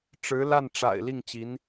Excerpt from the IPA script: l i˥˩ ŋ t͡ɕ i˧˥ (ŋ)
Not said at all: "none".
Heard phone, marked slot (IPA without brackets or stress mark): n